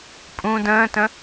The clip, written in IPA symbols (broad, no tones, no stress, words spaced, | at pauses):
pʼũ də̃ːtə̃